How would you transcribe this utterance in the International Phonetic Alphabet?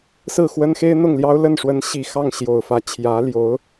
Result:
s ɹ̩˥˩ x w ə˥ n x e˥ ɪ̯ n̪ ʊ˥˩ ŋ l j ɑ˥ ʊ̯ l ə˥˩ n ʂ w ə˧˥ n ɕ i˨˩ x ɑ˥˩ ŋ ɕ j o˨˩ ʊ̯ f ä˧˥ t͡ɕʰ j ä˧˥ l j o˧˥ ʊ̯

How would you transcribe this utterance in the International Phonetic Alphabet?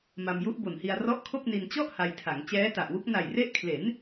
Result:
m a˧ m j u˦˥ ʔ b o˨˩ n h i˧ a̯ r ɔ˦˥ ʔ kʰ o˥˩ k̚ n i˧ n t͡ɕ ɔ˥˩ ʔ h a˧ j tʰ a˩˦ ŋ t͡ɕ ɛː˦˥ t a˨˩ ʔ w u˦˥ k̚ n a˨˩ j r e˦˥ ʔ kʰ l e˩˦ n

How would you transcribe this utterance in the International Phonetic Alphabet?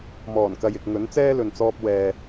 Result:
m ɔː˨˩ n k ɐ˨ j ɪ˨ k̚ ŋ ɵ˨˥ n t͡s ɛː˥ l ɵ˨ n t͡s ɔː˧ p̚ w ɛː˨

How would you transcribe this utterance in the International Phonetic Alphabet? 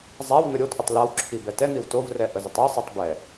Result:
zˤ a w n̪ ə ɾʲ o t ʔ ʏ tˤ l a w ǁʰ i b ɛ t ɛ n̪ i w t o v r ɛ ʔ ə z ə tˤ ɛ sˤ i tˤ b ɛ

